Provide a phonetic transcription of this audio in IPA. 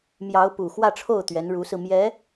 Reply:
m j ɑ˧˥ ʊ̯ p u˨˩ x w ä˥˧ ʈ͡ʂʰ o˥˩ ʊ̯ t̪ ɥ ɛ˧˥ n ɻ u˧˥ s ɹ̩˧ m j ɛ˧˥

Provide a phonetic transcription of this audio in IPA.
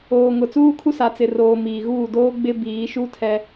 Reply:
oː˨ ŋ ʊ˨ t͡s uː˦ kʰ u˦ s a˨ t͡s ɪ˨ r oː˨ m iː˨ ɣ uː˦˨ d oː˦ ɡ͡b ɪ˦ b iː˨˦ ʃ u˦ tʰ ɛ˦

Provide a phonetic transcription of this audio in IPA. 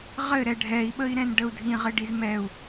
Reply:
ʁ ɘ ɾ ɛ ɖʱ ɛ i̯ ɓ ə i̯ ɾ ɛ̃ n ɖ ə u̯ dʱ ĩ ʁ ɘ ɖ i z m ɛ u̯

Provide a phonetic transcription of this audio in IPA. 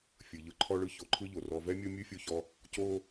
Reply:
fʲ ɯ˨ ʎ ɯ˧ ǃʰ ɔ˧ ɭ ɯ˧ ç o˨ ǃʰ ɯ˦ ʎ o˨ r ɔ˧ v ɛ˦ mʲ o˦ mʲ ɯ˦ fʲ o˧ ç ɔ˧ | c o˦

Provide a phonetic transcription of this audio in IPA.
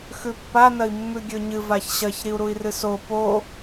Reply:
x ʉ pː a n ɐ i̯ mː ʉ ɡʲ ɵ ɲ ɨ v a ç ɕ ɐ ç ɾ i u̯ ɾ u i̯ r ɨ s o p o

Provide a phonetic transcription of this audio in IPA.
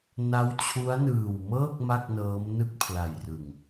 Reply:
n a˦˥ w t͡ɕʰ u˦˥ a̯ n ɯː˨˩ w m ɤː˥˩ k̚ m a˥˩ k̚ n ɤː˦˥ m n ɯ˥˩ k̚ pʰ l a˨˩ j r ɯ˨˩ ŋ

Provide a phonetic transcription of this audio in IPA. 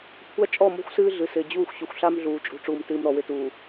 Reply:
kʷʰ a˦ t͡ʃʼ ɔ˦˨ m o̤˦ xʷ s ɨː˦ ɮ ɨ˨ s ɪː˨ d͡ʑ uː˦˨ xʷ ɕ u˨ xʷ ɬ a˦ m ɮ uː˨ t͡ʃʼ ṳ˨ ʈ͡ʂ uː˨ m t ɨː˨ m ɾ ɔ˨ w ɪ˦ t uː˨

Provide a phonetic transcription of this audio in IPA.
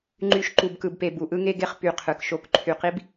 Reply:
ŋ͡ǃ y˨ ʃ ǃ u˨ b k ɯ˨ b p e˨ b u˨ ʔ ɯ˦ ŋ e˦ ɡ e˦ χ p y˨ qʰ ɯ˨ k ʃ o˦ k ǃʰ y˨ q i˦ b

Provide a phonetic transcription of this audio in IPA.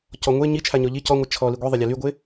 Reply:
c ɔ ŋʷ e ɲ i t͡ʃʰ a ɲ ɔ ʎ i c ɔ ŋʷ ɛ t͡ʃʰ ɔ l i ɡʷ i ðˤ e lʲ a l y ɡʷ e

